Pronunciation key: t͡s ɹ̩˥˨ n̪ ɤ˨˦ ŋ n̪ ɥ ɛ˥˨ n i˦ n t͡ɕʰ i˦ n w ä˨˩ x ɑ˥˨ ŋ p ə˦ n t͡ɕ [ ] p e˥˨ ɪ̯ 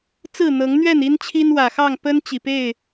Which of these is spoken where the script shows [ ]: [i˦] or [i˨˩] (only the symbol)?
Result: i˨˩